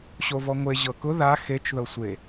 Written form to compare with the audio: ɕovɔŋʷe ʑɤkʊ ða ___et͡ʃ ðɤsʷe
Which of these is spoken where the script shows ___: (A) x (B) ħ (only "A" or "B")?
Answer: A